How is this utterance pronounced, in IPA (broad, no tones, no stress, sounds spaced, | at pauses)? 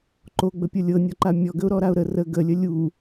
ǃ o ɡ͡b ə pʲ ɤ lʲ ɤ nʲ ɔ ǃ a mʲ ɔ ɡ ə ʊ̯ ɾ ɔ ɾ a ʊ̯ ɾ ə r ə ɡ ə lʲ ə lʲ u